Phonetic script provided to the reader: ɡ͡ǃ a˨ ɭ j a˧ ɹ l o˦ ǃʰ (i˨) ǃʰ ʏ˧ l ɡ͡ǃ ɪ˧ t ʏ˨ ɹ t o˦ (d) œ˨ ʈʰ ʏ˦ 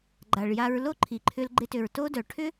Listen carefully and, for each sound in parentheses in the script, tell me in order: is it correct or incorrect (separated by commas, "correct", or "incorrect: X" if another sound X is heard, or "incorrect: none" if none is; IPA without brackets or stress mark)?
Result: correct, correct